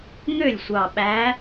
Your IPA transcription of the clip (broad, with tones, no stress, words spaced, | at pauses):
ŋø˥˩lʲsʷɑ˨˩ɓæ˨˦